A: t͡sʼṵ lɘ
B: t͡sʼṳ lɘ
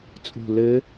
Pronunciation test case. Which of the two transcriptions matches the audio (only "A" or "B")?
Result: B